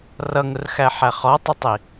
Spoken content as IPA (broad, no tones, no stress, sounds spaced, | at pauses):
r ʌ ŋ ʊ r x æ ħ æ χ ɔ tˤ ʊ tˤ i